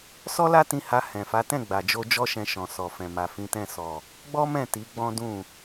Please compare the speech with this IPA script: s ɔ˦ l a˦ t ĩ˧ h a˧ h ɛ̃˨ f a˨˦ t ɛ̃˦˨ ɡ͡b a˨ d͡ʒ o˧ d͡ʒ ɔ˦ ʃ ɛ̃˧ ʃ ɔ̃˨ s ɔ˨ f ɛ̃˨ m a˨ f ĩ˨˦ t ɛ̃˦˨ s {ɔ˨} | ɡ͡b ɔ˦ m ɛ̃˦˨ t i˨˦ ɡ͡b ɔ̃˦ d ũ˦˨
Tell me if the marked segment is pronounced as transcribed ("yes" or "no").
yes